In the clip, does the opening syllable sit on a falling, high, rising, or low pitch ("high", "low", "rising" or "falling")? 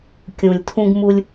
low